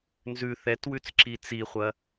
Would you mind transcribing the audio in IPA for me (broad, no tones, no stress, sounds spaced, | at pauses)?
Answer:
n z ʉ θ ɛ t w ʉ t͡s ǁ i t͡s i χʷ ɐ